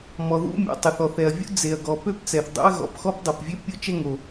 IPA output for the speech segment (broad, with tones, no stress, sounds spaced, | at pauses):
m ɔ˩ ð ṵ˥ mʲ ɔ̰˩ tˤ y˩ θ ɔ˩ θ ɛ˩ ɐ̯ vʲ ṵ˥ d͡z e˩ ɐ̯ ɡ ɔ˩ p ø˥ p t͡s ɛ˩ θ dˤ o̰˥ ɐ̯ ɣ ɔ̰˩ p x ɔ˥ p dˤ ø˩ p vʲ ø˥ pʲ o˥ t͡ʃ ɛ˥ ŋ o˩